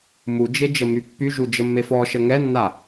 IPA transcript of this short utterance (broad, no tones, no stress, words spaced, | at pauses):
mud͡ʒe d͡ʒəmypːyʒu d͡ʒəmːefɔʃə ŋɛnːa